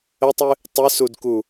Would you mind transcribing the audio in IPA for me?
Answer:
ətˤɨ | tˤɨsudku

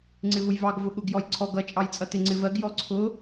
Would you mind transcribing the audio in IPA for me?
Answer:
ŋ͡ǀɪvʊjvɑɡ vʊɠʊɡ jɔjǀʰɔɡ ʌ t͡ʃʼɑjt͡sʼʌtɪ ŋ͡ǀɪvɜɡ jɔǀʰʊ

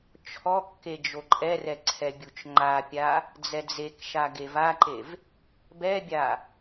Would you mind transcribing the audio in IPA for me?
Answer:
t͡ʃʰɔkːe d͡ʒoǃʼɛrɛ ǀʰɛbʲut͡ʃŋ͡ǃapʲa | d͡zɛd͡zekʃa ɡevaǃev | bɛbʲa

